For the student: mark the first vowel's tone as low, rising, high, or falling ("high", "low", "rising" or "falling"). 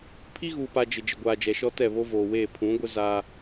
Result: high